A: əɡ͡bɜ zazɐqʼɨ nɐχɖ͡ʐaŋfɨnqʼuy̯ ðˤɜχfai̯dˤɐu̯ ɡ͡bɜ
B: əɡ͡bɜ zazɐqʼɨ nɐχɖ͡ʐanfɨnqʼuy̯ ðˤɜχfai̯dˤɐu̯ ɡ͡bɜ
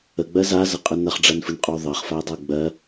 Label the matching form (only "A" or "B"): B